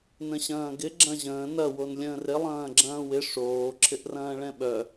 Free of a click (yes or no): no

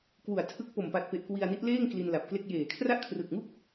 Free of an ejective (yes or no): yes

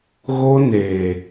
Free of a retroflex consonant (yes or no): yes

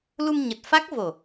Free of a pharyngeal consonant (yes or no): yes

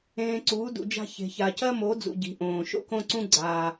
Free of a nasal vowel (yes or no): no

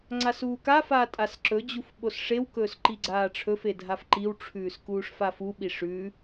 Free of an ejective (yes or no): no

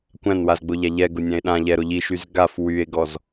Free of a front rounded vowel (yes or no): no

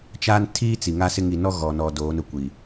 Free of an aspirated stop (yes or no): no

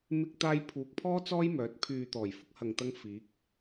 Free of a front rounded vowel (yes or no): no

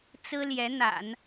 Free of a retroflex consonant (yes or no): yes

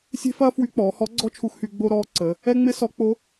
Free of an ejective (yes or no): yes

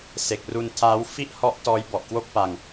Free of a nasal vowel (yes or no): yes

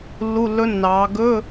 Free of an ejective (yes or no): yes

